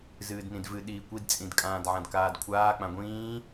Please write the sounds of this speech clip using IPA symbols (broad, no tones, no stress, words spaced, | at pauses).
zɨːdnĩdvɨ ɗiːkʷidt͡sʼĩd kʼãːdʕãdkaːdkʷʰaː k͡pãɡʷĩː